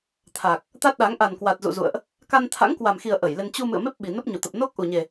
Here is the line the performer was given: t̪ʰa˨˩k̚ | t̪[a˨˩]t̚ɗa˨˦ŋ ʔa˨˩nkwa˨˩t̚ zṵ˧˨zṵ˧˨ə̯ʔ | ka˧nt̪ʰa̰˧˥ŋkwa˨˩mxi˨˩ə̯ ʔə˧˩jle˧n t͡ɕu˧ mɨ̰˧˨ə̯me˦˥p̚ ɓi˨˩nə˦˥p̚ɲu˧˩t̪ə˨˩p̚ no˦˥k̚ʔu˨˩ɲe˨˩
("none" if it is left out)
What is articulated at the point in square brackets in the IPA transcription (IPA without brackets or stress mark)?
a˦˥